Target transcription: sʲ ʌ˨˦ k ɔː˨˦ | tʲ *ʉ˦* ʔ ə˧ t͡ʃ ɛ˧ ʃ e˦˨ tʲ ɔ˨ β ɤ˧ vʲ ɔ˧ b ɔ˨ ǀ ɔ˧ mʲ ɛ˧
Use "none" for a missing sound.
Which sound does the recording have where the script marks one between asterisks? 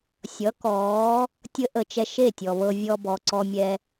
ə˦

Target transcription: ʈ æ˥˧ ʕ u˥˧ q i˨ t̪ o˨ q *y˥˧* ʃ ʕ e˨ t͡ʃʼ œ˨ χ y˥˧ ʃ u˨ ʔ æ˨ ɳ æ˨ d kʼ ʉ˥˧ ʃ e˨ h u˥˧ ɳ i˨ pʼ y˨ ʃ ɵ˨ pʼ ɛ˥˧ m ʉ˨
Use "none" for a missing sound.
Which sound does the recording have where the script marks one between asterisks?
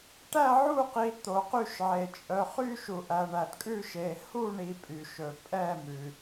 y˥˧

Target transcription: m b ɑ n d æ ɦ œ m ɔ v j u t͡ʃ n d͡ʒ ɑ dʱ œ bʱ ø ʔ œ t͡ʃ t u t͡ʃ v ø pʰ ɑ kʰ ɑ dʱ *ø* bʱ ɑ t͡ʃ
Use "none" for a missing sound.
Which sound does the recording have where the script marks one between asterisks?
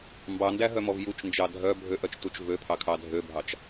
ø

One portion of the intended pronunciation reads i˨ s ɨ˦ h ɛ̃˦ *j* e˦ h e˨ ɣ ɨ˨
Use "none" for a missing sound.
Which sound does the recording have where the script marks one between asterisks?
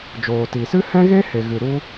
ɣ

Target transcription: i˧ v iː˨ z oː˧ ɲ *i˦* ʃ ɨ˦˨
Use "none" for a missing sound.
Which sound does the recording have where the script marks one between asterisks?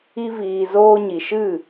i˨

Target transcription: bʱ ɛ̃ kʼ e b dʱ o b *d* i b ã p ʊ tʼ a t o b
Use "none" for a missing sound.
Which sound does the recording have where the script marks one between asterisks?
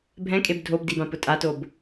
d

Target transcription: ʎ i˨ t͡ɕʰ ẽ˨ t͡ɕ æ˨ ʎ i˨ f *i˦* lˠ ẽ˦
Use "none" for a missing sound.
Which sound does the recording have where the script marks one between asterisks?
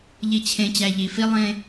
i˦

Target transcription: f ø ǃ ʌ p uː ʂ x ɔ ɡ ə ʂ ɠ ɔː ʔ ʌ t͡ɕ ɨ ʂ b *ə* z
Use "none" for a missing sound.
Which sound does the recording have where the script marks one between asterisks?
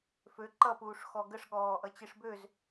ø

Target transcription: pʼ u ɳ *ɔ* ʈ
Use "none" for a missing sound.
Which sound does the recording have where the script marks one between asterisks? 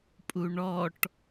ɔ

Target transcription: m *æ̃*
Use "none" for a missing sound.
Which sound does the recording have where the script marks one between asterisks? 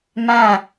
æ̃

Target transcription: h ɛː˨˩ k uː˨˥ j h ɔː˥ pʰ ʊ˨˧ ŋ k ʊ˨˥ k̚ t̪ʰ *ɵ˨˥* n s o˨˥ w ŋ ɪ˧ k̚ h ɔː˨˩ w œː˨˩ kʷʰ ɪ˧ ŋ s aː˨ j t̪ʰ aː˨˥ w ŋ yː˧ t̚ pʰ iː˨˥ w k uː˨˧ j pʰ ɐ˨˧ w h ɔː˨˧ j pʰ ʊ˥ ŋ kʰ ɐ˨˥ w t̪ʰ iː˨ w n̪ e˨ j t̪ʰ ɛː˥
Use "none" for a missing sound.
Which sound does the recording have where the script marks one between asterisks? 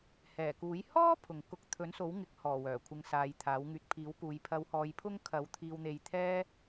ɵ˨˥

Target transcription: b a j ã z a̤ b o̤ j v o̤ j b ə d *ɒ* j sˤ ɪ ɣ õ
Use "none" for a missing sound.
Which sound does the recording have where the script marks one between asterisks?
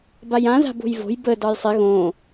ɒ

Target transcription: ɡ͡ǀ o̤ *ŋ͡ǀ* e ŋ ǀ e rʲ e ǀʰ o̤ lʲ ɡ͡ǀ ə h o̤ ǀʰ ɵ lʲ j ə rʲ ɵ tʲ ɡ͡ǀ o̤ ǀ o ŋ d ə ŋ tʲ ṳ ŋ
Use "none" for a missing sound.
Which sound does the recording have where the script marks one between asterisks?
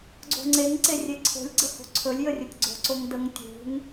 ŋ͡ǀ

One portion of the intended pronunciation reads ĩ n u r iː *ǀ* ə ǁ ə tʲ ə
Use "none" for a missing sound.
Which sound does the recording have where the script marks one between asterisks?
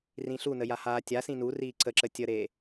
ǀ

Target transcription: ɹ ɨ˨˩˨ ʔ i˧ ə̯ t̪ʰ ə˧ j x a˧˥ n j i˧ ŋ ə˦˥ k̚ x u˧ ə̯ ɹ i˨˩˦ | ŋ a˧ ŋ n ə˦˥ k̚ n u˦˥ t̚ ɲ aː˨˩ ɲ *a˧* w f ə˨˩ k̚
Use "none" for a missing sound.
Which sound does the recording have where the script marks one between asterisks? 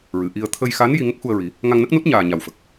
a˨˩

